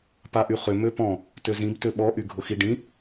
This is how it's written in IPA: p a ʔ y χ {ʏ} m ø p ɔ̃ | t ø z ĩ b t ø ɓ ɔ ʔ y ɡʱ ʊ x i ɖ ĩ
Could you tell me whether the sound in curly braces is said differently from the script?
no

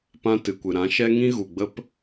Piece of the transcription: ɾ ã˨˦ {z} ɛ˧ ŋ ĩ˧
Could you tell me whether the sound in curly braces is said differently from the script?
yes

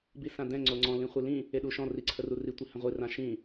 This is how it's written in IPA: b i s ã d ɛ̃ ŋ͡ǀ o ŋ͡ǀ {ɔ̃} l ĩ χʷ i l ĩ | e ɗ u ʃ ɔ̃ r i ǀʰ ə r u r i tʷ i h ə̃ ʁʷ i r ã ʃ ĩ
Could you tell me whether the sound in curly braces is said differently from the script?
no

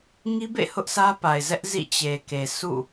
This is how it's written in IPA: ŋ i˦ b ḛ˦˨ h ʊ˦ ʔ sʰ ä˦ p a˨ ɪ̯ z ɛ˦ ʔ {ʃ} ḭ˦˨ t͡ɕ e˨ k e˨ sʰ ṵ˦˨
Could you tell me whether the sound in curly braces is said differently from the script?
yes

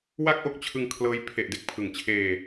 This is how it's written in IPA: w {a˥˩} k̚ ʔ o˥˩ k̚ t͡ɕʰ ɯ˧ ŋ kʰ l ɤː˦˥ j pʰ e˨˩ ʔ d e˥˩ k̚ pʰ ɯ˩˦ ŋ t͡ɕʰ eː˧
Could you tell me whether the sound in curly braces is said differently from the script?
no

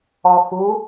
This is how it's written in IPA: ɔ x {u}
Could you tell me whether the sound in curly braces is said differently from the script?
no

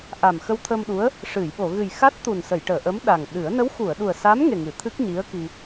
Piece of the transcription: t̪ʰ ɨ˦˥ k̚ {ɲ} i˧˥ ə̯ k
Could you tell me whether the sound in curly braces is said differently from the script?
no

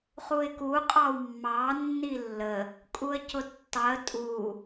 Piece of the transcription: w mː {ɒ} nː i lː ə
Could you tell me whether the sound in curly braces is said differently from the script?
yes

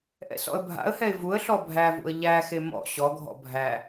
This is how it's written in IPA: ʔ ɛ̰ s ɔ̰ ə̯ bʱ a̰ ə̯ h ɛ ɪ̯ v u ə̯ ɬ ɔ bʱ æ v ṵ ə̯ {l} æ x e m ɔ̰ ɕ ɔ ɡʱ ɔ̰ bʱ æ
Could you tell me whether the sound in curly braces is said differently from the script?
yes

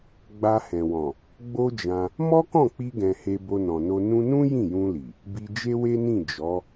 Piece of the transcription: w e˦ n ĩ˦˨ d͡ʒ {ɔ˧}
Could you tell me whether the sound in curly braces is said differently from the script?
yes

